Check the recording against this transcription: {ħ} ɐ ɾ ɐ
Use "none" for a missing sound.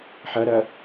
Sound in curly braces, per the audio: ħ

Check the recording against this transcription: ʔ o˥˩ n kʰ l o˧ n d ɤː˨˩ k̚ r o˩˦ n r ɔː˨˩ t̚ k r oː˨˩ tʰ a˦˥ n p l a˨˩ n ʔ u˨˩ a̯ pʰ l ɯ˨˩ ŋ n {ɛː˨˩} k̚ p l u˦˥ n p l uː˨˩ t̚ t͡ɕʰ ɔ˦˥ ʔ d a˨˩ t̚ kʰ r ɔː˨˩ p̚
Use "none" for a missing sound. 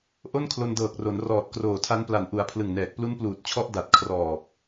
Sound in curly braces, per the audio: ɛː˨˩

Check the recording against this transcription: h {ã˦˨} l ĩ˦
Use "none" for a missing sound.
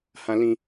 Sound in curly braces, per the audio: ã˦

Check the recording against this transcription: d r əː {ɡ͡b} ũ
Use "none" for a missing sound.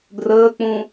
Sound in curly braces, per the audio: k͡p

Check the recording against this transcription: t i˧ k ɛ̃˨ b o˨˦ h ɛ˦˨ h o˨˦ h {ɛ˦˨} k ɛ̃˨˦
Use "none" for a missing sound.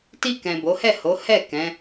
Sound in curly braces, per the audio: ɛ˦˨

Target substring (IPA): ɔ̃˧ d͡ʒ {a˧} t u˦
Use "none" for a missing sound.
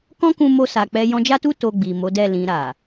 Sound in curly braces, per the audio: a˦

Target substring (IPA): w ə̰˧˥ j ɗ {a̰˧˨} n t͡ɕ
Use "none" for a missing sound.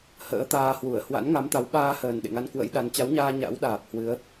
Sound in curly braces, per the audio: a˨˦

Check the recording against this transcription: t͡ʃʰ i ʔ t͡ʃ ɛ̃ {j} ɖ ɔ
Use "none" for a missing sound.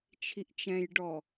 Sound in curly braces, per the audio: j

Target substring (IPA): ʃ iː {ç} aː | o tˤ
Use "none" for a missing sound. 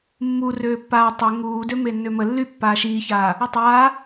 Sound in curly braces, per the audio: ç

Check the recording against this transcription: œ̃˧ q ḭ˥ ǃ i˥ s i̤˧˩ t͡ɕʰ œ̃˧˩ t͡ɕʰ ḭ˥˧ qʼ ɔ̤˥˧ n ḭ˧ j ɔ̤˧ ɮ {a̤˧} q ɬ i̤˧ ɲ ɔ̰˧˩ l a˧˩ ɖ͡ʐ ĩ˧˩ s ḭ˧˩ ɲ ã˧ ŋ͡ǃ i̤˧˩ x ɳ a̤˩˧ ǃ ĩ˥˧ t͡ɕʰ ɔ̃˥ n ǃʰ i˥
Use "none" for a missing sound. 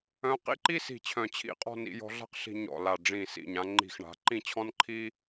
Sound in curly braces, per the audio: a̤˥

